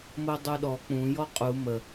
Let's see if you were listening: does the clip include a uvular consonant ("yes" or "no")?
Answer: yes